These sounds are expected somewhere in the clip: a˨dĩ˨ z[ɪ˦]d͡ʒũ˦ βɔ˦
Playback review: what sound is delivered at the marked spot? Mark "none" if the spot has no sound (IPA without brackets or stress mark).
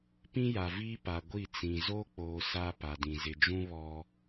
ɪ˨